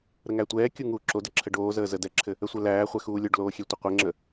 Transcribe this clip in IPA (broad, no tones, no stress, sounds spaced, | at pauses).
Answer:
ɾ ə ŋ æ tʷ ɛː kʲ u ŋ uː ǁ o d ə ǁʰ ə ɖ oː z əː z ə d ɛ ǁʰ ɘ | ə sʷ ɛ l æː χʷ ɛ x uː lʲ o ɖ l oː xʲ ɛ tʷ ɘ qʷ ɘ ŋ͡ǁ ə